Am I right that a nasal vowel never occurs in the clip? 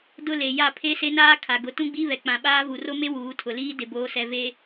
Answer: no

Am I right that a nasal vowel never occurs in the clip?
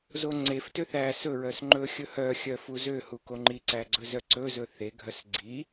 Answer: yes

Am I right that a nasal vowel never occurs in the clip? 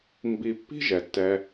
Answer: yes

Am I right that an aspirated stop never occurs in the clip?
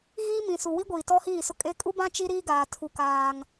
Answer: no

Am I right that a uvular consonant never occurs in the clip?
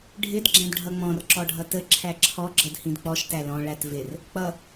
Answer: yes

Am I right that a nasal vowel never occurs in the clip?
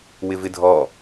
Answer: yes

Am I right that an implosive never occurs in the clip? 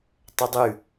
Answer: yes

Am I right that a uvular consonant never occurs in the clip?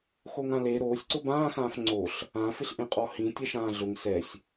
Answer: no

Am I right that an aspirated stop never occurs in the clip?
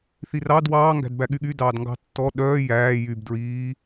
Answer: yes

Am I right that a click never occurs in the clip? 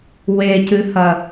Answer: yes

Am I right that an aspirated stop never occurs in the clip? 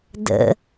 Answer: yes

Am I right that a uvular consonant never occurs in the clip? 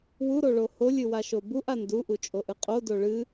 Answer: no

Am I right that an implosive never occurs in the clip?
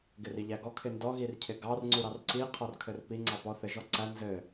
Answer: yes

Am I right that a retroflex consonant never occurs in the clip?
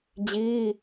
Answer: yes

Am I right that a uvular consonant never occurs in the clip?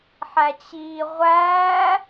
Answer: no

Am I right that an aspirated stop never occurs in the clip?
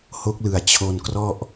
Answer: no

